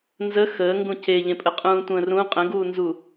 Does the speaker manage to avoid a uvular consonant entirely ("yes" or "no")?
no